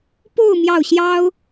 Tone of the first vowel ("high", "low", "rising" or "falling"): falling